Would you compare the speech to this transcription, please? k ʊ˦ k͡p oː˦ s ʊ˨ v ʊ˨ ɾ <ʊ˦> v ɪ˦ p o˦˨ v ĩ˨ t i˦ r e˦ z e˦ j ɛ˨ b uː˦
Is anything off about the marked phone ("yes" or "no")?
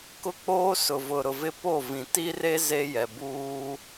yes